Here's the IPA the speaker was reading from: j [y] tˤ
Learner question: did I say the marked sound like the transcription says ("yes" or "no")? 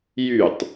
yes